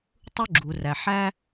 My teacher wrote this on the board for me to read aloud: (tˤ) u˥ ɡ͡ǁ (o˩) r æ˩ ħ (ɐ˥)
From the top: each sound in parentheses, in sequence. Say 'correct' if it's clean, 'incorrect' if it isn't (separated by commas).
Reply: correct, incorrect, incorrect